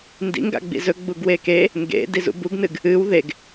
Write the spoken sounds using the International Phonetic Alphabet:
n d ḭ ŋ ɡ a̰ ɡ͡b ḭ z ɵ ɡ͡b u ɡ w e k e | ŋ ɡ ḛ d i z ṵ b u ɡ n ɨ ɡ | ɨ w ð e ɡ

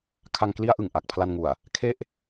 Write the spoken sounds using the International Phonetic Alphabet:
kʰ a˧ ŋ k l i˦˥ a̯ ʔ ɯ˨˩ ŋ ʔ a˨˩ k̚ pʰ l a˧ n ŋ u˨˩ a̯ | kʰ e˥˩ ʔ

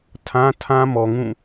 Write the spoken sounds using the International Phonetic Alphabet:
tʰ ã˦ tʰ ã˦ m ɔ˨ ŋ ũ˦˨

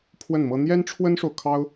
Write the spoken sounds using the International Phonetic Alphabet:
pʰ w ə˥˩ n m ɤ˥ n̪ j ɛ˥ n ʈ͡ʂʰ w ə˥ n ʂ o˨ ʊ̯ kʰ ɑ˥ ʊ̯

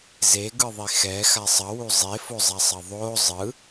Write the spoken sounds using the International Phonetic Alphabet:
z e ɡ ɯ ðˤ i x ɛ x a sˤ ʌ w u zˤ e f o zˤ a sˤ ʌ ðˤ o zˤ ɯ

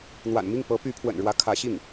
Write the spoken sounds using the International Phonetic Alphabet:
n̪ w a̰˨˩ n m i˥˩ ŋ p ɤ˧˥ p y˧˥ pʰ w ə̰˨˩ n ɻ w ä˧˥ kʰ ä˧˥ ɕ i˥˩ ŋ

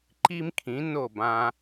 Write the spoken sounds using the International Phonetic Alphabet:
ǃ i˥ m kʰ ĩ˩˥ n o˥˩ b ã˧

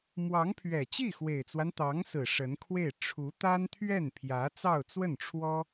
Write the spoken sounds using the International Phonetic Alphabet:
m w ɑ˧˥ ŋ pʰ ɥ ɛ˨˩ t͡ɕ i˥˩ x w e˨˩ ɪ̯ t͡s w a˦ n t̪ ɑ˧˥ ŋ s ɹ̩˨˩ ʂ ə˧˥ n kʰ w e˥˩ ɪ̯ ʈ͡ʂʰ u˧˥ t̪ a˥ n t̪ʰ ɥ ɛ˥˩ n pʰ j ä˧˥ t͡s ɑ˥˧ ʊ̯ t͡s w ə˥˩ n ʈ͡ʂʰ w ɔ˥

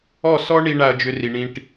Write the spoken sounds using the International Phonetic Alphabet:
ɔ˥˩ s ɔ˥ ɳ i˧ ɳ a˧ ɐ̯ d͡ʒ ʏ˧ r i˩ ɳ ĩ˧ ʈ

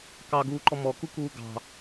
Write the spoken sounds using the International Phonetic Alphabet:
k ɑ ɡ uː ǃ ɔ m ɔ k u k uː ɡ ɑ̤

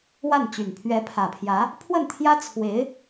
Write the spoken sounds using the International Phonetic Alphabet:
w a˥˩ n t͡ɕ y˨˩ n pʰ ɥ ɛ˧˥ pʰ ä˨˩ pʰ j ä˧˥ | pʰ w ə˥˩ n t̪ʰ j ä˥ t͡sʰ w e˧˥ ɪ̯

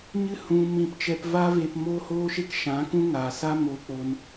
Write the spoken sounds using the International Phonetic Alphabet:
ɲ ɨ˦ h ũ˦ m ĩ˦˨ p t͡ʃ ɛ˦ p v aː˦ v e˧ p m oː˦ h oː˦ ʃ e˦ k ʃ ã˨˦ k ũ˦ ŋ aː˨ s a˦ m o˧ k͡p o˧ n

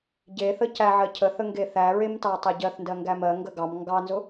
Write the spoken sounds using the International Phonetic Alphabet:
ɟ e θ ə c æ ʕ ɜ cʰ ə θ ə ŋ ɡ e θ æ ɹ e m t ɑ tˤ æ ɟ ɜ θ n d ɜ ŋ ɡ æ m ɜ ŋ ɡ ə ɡ ɑ m ŋ ɡ ɑ n z ʊ

